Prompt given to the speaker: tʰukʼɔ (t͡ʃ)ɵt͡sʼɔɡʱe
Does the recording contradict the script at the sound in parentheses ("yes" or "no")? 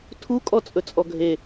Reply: yes